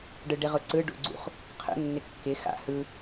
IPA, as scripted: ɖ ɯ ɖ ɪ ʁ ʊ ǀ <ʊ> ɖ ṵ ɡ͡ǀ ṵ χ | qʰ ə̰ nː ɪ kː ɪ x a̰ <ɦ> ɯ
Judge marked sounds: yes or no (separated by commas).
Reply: no, no